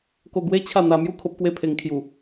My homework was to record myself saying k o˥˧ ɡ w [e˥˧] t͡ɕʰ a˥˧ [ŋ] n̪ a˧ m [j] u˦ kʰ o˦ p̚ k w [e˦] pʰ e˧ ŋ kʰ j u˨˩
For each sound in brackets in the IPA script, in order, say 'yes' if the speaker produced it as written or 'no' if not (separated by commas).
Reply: no, no, yes, no